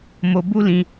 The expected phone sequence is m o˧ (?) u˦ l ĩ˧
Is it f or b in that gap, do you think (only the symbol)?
b